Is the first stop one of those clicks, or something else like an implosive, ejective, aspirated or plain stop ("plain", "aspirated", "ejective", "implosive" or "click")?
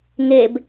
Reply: plain